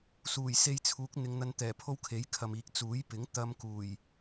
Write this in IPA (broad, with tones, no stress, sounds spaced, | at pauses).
s uː˨˩ j s e˧ j t͡sʰ uː˨˥ k̚ n̪ ɪ˨˧ ŋ n̪ ɐ˧ n t̪ ɛː˨˩ pʰ o˥ w kʰ e˨˥ j kʰ ɐ˨ m iː˨ k̚ t͡s uː˨˥ j p ɪ˨˥ ŋ t̪ ɐ˧ m k uː˨˩ j